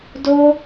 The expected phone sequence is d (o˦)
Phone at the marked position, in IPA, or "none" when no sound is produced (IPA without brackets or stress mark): o˦